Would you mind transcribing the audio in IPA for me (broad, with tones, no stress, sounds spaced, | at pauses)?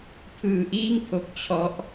pʰ ɯː˧ ʔ iː˥˩ ŋ pʰ o˦˥ k̚ t͡ɕʰ ɔ˦˥ ʔ